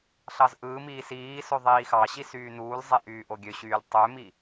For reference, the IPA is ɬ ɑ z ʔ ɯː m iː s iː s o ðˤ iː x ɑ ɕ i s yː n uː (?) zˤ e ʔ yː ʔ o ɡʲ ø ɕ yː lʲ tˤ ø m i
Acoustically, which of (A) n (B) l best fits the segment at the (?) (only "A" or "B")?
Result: B